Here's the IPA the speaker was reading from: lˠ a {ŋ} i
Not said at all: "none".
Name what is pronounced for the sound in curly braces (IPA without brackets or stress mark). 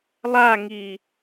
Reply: ŋ